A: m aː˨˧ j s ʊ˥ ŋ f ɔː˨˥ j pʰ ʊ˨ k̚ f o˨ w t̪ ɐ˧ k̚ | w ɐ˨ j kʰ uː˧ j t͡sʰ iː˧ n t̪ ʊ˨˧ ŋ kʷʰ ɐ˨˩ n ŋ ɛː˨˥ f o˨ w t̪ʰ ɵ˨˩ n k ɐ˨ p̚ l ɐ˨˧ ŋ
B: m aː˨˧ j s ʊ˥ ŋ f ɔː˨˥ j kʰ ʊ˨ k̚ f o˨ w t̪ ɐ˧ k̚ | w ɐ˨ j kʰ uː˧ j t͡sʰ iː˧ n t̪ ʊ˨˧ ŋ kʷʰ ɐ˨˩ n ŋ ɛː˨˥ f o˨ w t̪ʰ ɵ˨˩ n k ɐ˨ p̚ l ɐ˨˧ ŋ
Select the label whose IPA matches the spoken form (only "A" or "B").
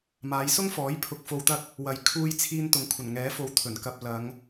A